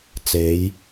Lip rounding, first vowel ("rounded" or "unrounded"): unrounded